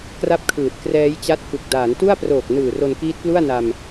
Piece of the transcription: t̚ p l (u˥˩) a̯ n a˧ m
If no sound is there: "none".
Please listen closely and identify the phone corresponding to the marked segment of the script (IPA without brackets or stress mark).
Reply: u˥˩